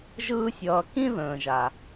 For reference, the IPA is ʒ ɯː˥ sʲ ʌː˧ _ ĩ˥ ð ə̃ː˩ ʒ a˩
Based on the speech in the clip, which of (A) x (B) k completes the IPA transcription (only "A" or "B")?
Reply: B